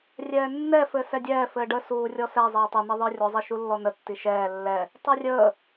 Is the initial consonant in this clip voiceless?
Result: no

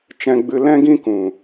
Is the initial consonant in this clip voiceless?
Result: yes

